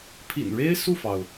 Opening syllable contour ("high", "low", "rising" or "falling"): low